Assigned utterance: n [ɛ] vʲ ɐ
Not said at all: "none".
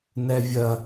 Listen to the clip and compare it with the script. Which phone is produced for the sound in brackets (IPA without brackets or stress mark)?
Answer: ɛ